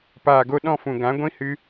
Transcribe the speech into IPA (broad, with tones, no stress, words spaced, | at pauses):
paː˨ɡo˧ɗɔ̃˦˨fũ˨ ɡã˨˦ɡʷĩ˦hɨ˦